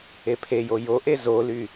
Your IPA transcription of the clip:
epʰejo joʔe zoly

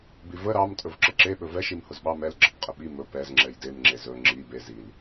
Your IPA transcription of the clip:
bivə ɾɑm tʼɵvǁəǁe ɓɵvɛ ʃimhʊzɓɑ mɛl ɡ͡ǁəpqʼəɓi mɵ pɛz ŋ͡ǁɛjdem ŋ͡ǁezɵ ŋ͡ǁi be zil

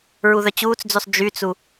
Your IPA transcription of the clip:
ɹuðœt͡ɕuːt͡sd͡zysˤ d͡ʒyt͡su

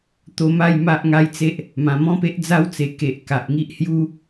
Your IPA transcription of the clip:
t̪o˧ma˥˧j ma˦ʔŋa˦jt͡se˦ʔ | mã˨˩mɔ̃˦pe˦ʔ d͡za˦wt͡se˨˩ ke˨ʔ ka˨ʔŋi˦ʔhju˦

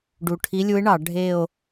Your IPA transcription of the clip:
ɖu˨˩ʈʰi˧˥lʲu˧˥e̯ɳɑ˧˩˧ ɖʱe˦˨o̯

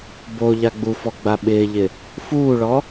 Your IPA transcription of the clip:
bo ʎaɡ͡bufɔ ɡ͡baɓɪːʎɪ | fuːɭɔ

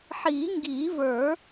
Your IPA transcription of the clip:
ħiː˨˩˦ŋɡiː˨˩˦və˞˨˩˦

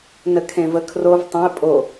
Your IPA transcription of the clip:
nəkʰẽvəkʰrov tˤə̃ɪ̯ pʼo

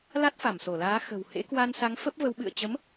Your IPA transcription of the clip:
la˦˥t̚fa˧˩mso˧˩laː˨˦ xə̤˨˩w hḛ˧˥kwa˧nsa˨˦ŋ fə˦˥p̚və˨˦wɓɨ̰˧˨ə̯ t͡ɕə˨˦m

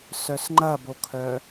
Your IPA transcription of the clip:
sœsŋ͡ǃɐbokʰœ

